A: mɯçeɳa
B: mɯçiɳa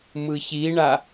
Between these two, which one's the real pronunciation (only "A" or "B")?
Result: B